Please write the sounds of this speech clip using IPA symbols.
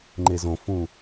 ŋ͡ǃ e z õ f ũ

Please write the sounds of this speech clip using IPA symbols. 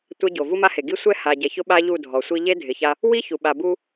tʷ ɛ˦ ɟ o˨ v u˦ m a˦ h e˨ ɡ i˦ sʷ ɛ˦ h a˨ ɟ ɛ˨ ç ʊ˦ ɓ a˦ ʎ u˦˨ dʱ ɔ˨ sʷ i˦ ʎ e˦ dʱ ɪ˨ ç a˦ | w i˦ ç u˨ ɓ a˨ b u˦

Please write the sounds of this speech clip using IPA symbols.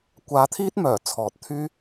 kʷ aː˧ t̪ʰ iː˥ t̚ m œː˨˩ t͡sʰ ɔː˨ t̚ t̪ʰ yː˥

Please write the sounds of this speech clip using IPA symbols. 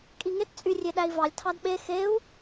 kʼ i ŋ e t t͡sʼ y rʲ e ɗ æ i̯ v ɑ lʲ tʰ ɑ d ɓ e x e u̯

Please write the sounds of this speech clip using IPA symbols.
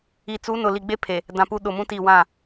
i˨ t͡s u˨˦ n ʊ˨ l i˨ ɡ͡b e˦ pʰ e˨ | d ã˨ p u˦ ɗ ʊ˨ m ũ˦ t i˦˨ w ã˦˨

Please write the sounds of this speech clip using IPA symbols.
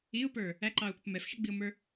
i ʊ̯ p ə˞ | æ ǃ ɑ ʊ̯ p ɪ p m ɛ f ʃ ɛ ɡ͡b i ʊ̯ m ə˞

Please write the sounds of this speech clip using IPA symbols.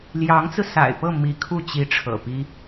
l j ɑ˧˥ ŋ t͡s ɹ̩˧ s a̰˨˩ ɪ̯ p ɤ˥˩ m i˧˥ kʰ u˥˩ t͡ɕ i˧˥ ʈ͡ʂʰ ɤ̰˨˩ p i˥

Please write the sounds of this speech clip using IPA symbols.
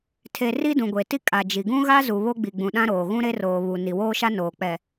tʰ e˨ r i˦ d ũ˨ ɡʷ e˨ t i˦ kʼ a˨ d͡ʒ i˨ ɡ ũ˦ ɣ a˦ z u˨ β o˦ ɡ͡b i˨ ɡ͡b ũ˨ ɗ ã˦ ɾ oː˨ ɣ ũ˦ ɾ e˦ r oː˨ β u˨ n i˨ w oː˦ ʃ a˦ n oː˨ k͡p ɛ˨

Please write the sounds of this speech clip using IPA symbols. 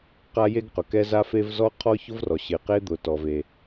q a˥ j e˥ ɡ q ʊ˩ k ɛ˥ z a˥ f e˥ v z ɔ˥ qʰ ɔ˥ ç ʊ˥ v r ɔ˩ ɕ ɪ˩ q e˥ d̪ ʊ˩ t ɔ˩ v e˩

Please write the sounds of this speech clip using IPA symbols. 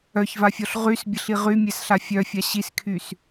œ ç v a fʲ ɔ ɬ ʁ y s bʲ ə ɬ i ʁ y mʲ ɛ s ɬ a fʲ œ fʲ a ɕ i s kʰ y s

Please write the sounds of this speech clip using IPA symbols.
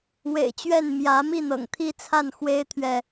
w ḛ˨˩ ɪ̯ t͡ɕ ɥ ɛ˥˨ n m j ä˨˦ m i˥˨ n̪ ɤ̰˨˩ ŋ t̪ʰ i˦ t͡sʰ a˥˨ n x w e˦ ɪ̯ t̪ʰ ɥ ɛ˨

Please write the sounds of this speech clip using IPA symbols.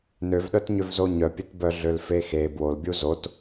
n ø v ɗ œ t ɲ ø v z o ɲ œ pʲ e t b œ ɮ ø l f e x e b w o l bʲ u z o t

